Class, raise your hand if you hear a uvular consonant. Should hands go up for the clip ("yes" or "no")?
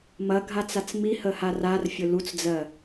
no